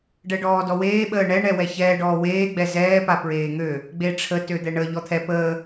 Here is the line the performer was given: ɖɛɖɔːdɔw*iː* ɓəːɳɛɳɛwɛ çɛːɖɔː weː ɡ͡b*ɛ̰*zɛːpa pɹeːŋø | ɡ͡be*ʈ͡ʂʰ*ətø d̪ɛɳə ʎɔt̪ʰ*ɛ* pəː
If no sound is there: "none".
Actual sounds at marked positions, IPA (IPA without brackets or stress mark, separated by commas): eː, ɛ, ʈ͡ʂʰ, ɛ